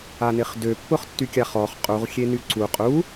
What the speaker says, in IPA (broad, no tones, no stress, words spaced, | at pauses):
anɪχdø pːʊχtːykʲaχɔχ qʼuʁ xʲenyǀu qʼu